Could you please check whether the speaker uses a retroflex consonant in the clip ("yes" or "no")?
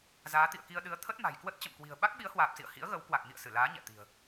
no